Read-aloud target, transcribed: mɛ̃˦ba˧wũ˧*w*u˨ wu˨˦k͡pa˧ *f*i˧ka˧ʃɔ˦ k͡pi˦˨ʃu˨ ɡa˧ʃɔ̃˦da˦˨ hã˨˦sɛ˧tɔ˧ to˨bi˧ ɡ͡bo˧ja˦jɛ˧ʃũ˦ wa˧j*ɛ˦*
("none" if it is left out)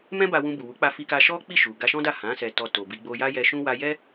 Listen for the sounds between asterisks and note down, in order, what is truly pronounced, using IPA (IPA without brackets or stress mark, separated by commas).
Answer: b, f, ɛ˦